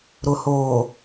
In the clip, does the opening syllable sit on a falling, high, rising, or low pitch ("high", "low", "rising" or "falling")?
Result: low